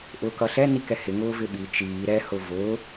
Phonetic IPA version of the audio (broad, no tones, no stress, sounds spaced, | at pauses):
ʔ ʊː k ʌ ɬ ɛ n i k ɛ h ɪ ŋ ʊː v ɪ ɓ i t͡ʃ iː ɾ ɛ h ʊ v ʊː